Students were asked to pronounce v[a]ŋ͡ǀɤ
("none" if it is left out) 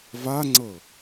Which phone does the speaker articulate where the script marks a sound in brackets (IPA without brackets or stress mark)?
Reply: a